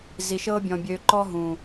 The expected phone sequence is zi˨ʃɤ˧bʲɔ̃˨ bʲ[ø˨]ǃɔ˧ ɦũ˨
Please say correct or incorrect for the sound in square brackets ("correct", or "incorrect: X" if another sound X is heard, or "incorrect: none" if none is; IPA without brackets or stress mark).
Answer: correct